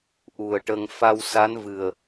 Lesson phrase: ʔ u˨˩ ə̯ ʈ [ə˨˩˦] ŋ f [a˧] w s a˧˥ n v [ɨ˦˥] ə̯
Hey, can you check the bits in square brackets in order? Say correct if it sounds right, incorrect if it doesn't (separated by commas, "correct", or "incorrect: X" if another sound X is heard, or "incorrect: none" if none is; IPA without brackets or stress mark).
incorrect: ə˧, correct, incorrect: ɨ˨˩